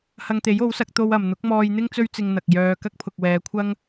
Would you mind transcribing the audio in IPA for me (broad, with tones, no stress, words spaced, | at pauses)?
hɐ˧ŋt̪e˨˥jo˨˥wsɐ˨˥k̚ t̪o˥wɐ˨m n̪ʊ˨˥k̚mɔː˧jn̪ɪ˥ŋ t͡sɵ˥ɥt͡sɪ˧ŋ n̪ɐ˨k̚jœː˧ kɐ˥k̚pʰʊ˨k̚wɛː˨˧kʷʰɐ˥ŋ